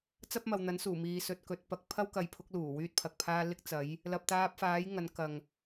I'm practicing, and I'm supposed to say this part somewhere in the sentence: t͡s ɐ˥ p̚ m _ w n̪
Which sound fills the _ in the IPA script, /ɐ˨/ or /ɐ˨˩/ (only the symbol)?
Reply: ɐ˨